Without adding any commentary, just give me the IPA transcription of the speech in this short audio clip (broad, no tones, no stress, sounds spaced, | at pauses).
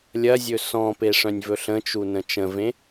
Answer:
lʲ ɐ zʲ ɵ s ɔ̃ p e ʂ œ̃ nʲ v ɵ ɬ ə̃ t͡ʃ u n ə̃ t͡ʃ ə̃ v ẽ